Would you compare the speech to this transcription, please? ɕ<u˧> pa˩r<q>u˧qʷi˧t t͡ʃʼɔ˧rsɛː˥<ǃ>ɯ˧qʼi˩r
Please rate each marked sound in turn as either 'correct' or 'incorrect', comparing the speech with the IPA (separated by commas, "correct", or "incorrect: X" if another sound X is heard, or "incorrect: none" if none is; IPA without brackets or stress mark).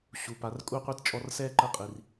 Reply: incorrect: u˩, incorrect: kʼ, correct